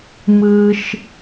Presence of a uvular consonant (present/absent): absent